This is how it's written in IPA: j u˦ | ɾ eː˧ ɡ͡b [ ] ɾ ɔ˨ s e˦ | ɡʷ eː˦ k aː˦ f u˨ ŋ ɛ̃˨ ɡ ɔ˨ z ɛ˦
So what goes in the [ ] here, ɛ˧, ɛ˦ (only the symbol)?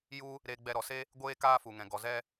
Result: ɛ˧